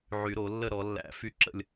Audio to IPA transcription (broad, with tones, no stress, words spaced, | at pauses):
ʕy˨˩˦ɾo˨˩˦lːə˥˧ ɾɔ˨˩˦lːæ̰˨˩˦ fy˥˧ǁə̰˥˧lʲ